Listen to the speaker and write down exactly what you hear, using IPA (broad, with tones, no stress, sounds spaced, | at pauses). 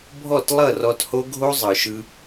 bʱ ɔ˦˨ t lˠ ʌ˦˨ r ɔ˧ t h o˦ ɡʱ o˦ zˤ ɯ˨ ʃ ɯ˧